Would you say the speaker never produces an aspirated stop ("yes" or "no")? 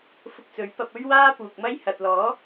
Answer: yes